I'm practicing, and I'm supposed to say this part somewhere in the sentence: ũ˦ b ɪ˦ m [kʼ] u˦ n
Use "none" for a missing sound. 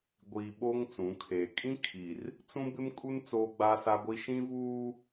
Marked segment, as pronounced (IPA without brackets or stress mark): kʼ